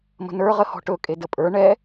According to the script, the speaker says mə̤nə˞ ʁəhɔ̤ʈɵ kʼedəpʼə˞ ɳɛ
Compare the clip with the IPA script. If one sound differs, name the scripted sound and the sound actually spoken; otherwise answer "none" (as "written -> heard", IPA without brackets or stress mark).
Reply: none